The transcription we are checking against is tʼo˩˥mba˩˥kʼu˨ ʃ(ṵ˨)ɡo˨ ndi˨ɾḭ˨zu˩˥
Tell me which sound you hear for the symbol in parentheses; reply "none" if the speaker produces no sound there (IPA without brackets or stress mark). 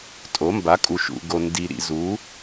ṵ˨